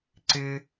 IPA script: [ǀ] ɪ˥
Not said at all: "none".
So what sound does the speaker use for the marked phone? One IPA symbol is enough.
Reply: ǀ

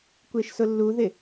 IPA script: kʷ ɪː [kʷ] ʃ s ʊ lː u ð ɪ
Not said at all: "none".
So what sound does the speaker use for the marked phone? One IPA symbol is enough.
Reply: none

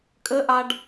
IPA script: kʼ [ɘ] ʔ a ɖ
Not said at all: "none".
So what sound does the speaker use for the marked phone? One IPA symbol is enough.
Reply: ɘ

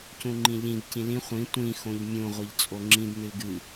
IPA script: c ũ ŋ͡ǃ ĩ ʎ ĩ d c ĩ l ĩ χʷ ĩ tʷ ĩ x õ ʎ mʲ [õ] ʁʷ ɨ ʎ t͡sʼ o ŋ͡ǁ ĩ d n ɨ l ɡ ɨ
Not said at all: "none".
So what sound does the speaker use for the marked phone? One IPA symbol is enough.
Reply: ũ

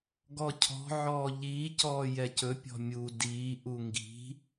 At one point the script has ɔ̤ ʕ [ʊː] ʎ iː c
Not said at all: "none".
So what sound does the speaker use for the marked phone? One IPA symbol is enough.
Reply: ɔː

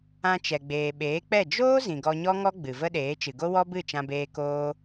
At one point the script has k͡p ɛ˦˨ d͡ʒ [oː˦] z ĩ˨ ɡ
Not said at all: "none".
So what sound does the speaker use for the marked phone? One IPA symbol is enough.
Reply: oː˦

